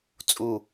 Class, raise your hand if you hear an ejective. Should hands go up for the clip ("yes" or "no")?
yes